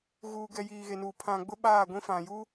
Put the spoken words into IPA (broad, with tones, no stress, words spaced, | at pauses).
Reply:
ɣuː˨ɡɛ˨ jiː˨ɣe˨nu˨ pʰã˨ ɡ͡bʊ˦ɓaː˦˨ɡʷĩ˦ fã˨ju˦